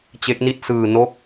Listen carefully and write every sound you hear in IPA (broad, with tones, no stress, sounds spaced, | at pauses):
t͡ɕ e˦˥ k̚ n i˥˩ t̚ s ɯː˧ n oː˦˥ k̚